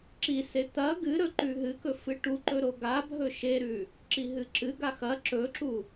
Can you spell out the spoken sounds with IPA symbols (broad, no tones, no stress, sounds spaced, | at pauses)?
ǁ i s e t̪ ɐ ɡ ɨ ɾ ɵ ǃ ʉ ɦ ɨ k ɵ f ɨ ʈ u ǃ ɵ ɾ o ɡ a bʱ ɵ ʃ e ɾ ʉ | ǁ i ɦ ɨ ǁ ɨ ɡ a x ɐ ǁ ɵ ǁ u